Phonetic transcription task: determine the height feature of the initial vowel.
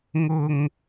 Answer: high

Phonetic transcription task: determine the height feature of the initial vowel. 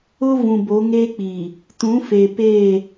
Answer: high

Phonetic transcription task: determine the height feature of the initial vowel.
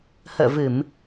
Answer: mid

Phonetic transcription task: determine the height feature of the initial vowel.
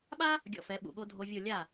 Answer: low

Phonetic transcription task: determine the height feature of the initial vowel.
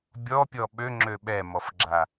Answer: mid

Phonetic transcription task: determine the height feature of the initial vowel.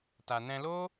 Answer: low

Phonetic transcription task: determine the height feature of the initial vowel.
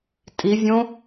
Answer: high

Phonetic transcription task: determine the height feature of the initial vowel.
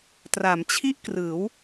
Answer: low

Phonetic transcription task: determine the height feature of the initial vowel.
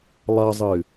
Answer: low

